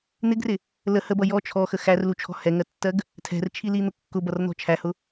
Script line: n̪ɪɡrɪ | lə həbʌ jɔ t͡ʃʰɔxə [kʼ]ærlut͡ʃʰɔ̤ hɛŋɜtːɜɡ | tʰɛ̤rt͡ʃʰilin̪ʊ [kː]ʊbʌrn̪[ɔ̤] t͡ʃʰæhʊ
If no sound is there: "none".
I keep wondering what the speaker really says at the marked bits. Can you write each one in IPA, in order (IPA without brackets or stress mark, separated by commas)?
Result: x, kː, ɔ̤